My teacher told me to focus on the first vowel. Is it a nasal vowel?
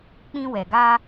yes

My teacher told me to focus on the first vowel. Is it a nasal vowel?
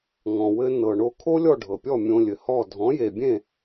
yes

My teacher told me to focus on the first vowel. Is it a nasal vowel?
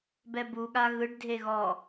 no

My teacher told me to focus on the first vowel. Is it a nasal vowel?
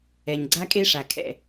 no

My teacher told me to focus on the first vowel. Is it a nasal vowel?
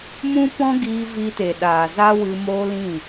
yes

